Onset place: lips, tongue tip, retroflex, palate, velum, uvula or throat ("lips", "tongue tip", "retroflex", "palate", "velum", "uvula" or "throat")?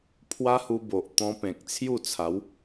lips